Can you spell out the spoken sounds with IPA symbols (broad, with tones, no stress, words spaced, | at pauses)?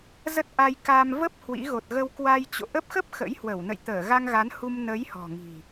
zə˦˥t̚ʔa˧jka˧m və˦˥p̚ hwḭ˧˥ ɣo˨˩t̚ɣə˧wkwa˧j t͡ɕo̰˧˨ʔə˦˥p̚ xə˦˥p̚ xə̰˧˥jhwə˧˩w nə̰˧˨jt̪əː˧˩ɣa˧ŋɣa˨˦n hu˧mnə˨˦jhɔ̤˨˩ ŋi̤˨˩